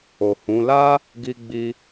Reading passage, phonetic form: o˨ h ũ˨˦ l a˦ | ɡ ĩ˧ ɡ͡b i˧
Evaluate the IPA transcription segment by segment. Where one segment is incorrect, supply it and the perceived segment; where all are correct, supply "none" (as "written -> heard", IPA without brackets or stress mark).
ĩ˧ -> i˧